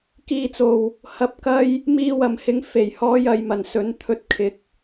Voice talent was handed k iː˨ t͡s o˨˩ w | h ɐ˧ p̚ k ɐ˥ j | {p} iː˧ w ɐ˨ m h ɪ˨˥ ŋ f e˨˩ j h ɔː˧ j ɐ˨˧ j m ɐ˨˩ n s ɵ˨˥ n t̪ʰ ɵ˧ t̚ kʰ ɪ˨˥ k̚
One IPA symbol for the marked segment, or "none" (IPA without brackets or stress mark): m